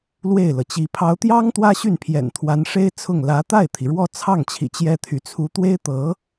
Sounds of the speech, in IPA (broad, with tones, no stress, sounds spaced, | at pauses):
l w e˥˩ ɪ̯ l ɤ˩ t͡ɕ i˧˥ pʰ ɑ˧˥ ʊ̯ t̪ j ɑ˥ ŋ t̪ w ä˥ ɕ y˥˩ n pʰ j ɛ̰˨˩ n t̪ʰ w a˧˥ n ʂ e˥ ɪ̯ t͡sʰ ʊ˥˩ ŋ l ä˧˥ t̪ a˥˩ ɪ̯ t̪ʰ i˩ ɻ w ɔ˥˧ t͡sʰ ɑ˥˩ ŋ t͡ɕʰ ḭ˨˩ t͡ɕ j ɛ˥ t̪ʰ y˧˥ t͡sʰ u˧˥ t̪ w e˥ ɪ̯ t̪ ɤ˧˥